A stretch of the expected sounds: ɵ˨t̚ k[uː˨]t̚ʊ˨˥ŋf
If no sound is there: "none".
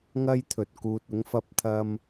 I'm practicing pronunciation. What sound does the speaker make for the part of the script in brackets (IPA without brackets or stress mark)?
uː˨